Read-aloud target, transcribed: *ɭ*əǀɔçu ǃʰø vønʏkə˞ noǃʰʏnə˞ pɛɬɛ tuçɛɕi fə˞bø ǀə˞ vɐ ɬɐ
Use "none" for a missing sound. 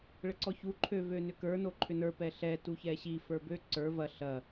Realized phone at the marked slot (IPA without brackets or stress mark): ɭ